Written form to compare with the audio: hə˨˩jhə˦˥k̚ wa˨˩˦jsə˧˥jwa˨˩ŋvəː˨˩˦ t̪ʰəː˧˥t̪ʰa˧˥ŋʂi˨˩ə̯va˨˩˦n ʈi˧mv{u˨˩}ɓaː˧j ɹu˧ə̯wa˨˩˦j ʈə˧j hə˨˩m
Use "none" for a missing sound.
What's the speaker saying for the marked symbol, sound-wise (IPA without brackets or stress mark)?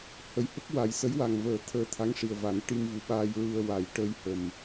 u˨˩